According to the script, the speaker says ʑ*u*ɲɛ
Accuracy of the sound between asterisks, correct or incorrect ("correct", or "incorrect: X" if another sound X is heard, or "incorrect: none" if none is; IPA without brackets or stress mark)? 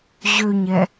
incorrect: ø